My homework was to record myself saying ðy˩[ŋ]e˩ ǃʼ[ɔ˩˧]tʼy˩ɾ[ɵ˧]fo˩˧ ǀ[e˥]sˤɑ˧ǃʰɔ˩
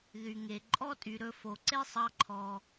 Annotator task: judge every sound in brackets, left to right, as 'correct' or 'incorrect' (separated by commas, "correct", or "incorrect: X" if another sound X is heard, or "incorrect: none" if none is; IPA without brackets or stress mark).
correct, incorrect: ɔ˥, correct, correct